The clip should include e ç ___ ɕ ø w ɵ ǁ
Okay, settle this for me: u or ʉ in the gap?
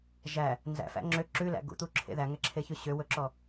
ʉ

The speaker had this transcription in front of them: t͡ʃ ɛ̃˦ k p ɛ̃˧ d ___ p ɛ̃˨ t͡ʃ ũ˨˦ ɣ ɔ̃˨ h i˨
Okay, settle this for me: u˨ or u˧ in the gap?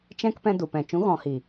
u˨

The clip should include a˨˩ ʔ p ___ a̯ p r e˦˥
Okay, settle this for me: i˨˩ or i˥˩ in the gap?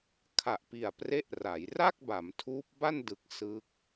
i˨˩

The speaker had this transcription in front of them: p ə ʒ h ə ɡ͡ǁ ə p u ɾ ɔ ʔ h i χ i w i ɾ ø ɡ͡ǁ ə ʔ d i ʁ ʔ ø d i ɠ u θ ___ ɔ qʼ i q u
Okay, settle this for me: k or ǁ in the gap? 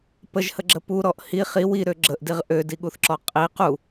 ǁ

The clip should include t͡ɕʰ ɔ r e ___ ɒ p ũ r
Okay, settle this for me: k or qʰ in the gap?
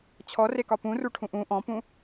k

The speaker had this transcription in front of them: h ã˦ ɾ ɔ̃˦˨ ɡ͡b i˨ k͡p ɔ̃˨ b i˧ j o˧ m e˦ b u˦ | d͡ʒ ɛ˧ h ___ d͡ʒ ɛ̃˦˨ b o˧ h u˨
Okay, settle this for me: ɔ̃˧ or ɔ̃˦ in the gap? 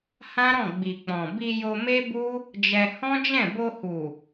ɔ̃˦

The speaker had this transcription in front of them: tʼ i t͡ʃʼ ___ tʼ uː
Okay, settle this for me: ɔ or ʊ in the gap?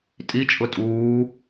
ʊ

